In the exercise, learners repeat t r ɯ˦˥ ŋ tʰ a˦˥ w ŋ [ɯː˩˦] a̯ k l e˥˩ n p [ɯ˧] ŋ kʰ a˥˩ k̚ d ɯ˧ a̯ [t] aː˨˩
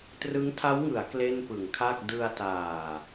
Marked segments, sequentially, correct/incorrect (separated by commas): incorrect, incorrect, correct